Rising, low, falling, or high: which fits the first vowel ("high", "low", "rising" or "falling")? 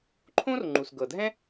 high